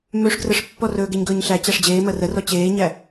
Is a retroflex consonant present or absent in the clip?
present